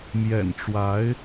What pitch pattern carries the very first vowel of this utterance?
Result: low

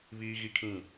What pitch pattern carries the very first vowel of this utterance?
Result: high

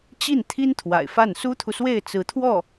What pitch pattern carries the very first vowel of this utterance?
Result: falling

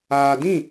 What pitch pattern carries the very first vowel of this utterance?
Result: low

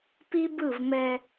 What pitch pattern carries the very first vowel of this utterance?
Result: high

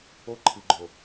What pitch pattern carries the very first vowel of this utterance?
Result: high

